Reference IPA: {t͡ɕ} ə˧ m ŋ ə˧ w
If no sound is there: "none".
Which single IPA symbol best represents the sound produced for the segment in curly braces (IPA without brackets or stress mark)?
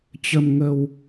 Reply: t͡ɕ